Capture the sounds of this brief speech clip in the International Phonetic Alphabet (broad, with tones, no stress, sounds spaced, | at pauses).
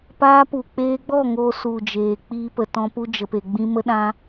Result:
p aː˧ p u˨ k͡p eː˧ ɡ͡b ɔ˦˨ ŋ oː˧ s u˨ d͡ʒ eː˨ k͡p iː˧ p ə˨ t ɔ̃˧ p u˧ d͡ʒ ə˨ p e˨ ɡ͡b ĩ˧ m ə˧ ɗ ã˧